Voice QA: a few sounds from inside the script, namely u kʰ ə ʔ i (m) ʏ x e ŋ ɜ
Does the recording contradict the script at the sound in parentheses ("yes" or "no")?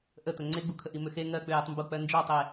no